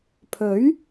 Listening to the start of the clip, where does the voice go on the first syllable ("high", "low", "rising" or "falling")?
rising